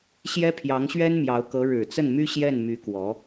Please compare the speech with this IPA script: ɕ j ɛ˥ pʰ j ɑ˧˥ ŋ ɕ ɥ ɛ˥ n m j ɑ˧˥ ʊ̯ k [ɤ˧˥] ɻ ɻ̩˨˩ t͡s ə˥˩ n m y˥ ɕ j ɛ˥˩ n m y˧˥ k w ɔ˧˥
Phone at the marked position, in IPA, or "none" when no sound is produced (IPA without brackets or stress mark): ɤ˧˥